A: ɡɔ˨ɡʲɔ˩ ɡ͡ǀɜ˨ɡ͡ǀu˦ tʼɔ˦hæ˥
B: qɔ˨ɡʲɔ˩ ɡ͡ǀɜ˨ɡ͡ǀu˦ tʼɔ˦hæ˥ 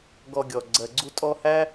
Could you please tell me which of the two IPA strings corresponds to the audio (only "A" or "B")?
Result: A